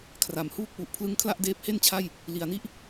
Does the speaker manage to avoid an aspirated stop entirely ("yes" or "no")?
no